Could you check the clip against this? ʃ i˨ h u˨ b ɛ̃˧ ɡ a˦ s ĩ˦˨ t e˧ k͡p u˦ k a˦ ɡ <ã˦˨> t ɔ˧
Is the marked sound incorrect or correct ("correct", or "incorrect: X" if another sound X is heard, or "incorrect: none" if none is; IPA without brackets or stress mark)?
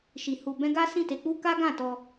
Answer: correct